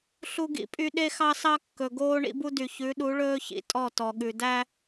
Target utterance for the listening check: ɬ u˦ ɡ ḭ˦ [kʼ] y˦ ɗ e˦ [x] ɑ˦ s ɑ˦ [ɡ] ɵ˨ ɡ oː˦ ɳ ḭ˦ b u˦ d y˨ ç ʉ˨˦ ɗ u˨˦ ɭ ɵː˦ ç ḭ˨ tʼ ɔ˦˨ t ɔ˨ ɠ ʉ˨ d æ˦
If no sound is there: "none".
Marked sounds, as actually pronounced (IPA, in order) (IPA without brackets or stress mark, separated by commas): pʼ, x, kː